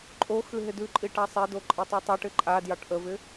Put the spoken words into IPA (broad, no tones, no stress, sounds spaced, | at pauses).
ǃʼ o x ʉ ɦ ɪ d ʉ ǃʼ i ʈ a sˤ e d o ǃʼ ɨ tˤ o tˤ o ʈ ɪ ǃʼ a d j ɑ ʈ ʔ ə v ɪ